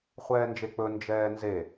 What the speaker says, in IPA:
χʷ ɛː n d͡ʒ e k͡p ɵ n d͡ʒ ɛː n z e

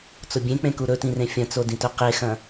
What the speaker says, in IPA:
t͡s o bʲ ẽ k͡p ẽ k u ɾ ɵ t ĩ r ẽ fʲ ɐ̃ t͡s o d ĩ t ɵ q e x ɐ̃

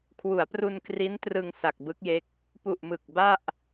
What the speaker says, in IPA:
kʰ w u˩˦ a̯ p r u˧ n k r i˦˥ n t r ɯ˧ ŋ s a˨˩ k̚ b ɯ˦˥ k̚ j e˦˥ k̚ | p u˨˩ ʔ m ɯ˨˩ k̚ b a˥˩ ʔ

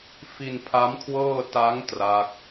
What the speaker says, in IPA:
f i˧ n pʰ a˦˥ m kʰ w ɤː˥˩ t a˦˥ ŋ t r a˦˥ k̚

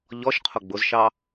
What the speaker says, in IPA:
ʎ ɔ ʃ qʰ ʊ ɡ͡b ʊ z ʃ ɑ

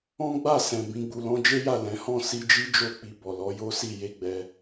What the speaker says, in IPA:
ɔ̃˦ ɡ͡b a˦˨ s ɛ̃˨ b ĩ˧ ɡ͡b u˧ l ɔ̃˦ d͡ʒ e˦ j a˦˨ l ɛ̃˨˦ h ɔ̃˦˨ s i˧ d͡ʒ i˦ d͡ʒ o˦˨ k͡p i˧ b ɔ˨ l ɔ˨˦ j o˦ s i˦˨ j e˧ ɡ͡b ɛ˧

